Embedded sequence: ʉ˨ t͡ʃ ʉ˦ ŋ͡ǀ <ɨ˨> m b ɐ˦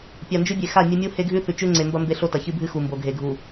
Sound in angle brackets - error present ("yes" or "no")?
yes